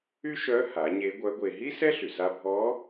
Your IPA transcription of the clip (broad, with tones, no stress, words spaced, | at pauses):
y˥ʃœ˧˥ha˩˧ ɲe˧˥ɡʷœ˧˥ɡʷe˧ ɦi˥sɛ˥ɬy˩sa˧ bʱɔ˧˥